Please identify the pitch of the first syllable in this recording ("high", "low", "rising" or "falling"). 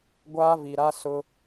high